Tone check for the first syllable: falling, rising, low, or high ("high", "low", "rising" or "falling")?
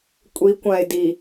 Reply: rising